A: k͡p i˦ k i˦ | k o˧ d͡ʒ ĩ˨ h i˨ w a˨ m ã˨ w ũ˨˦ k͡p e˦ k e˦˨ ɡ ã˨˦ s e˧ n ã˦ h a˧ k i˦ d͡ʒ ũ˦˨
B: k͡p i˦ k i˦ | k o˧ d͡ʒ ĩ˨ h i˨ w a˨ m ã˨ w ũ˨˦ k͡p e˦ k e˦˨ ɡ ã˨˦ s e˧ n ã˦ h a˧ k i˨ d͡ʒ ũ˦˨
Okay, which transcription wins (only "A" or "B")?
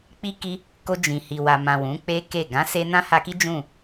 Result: A